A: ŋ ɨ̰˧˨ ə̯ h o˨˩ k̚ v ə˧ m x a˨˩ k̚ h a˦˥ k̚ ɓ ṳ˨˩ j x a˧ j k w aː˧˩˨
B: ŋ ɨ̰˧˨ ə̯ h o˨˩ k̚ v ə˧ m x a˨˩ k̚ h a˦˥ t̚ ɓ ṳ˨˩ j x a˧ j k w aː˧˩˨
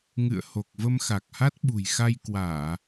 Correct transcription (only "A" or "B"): B